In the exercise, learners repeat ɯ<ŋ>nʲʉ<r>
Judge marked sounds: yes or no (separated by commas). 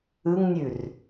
yes, yes